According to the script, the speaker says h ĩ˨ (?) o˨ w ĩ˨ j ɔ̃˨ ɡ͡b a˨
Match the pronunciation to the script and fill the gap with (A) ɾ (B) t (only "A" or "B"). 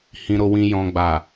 A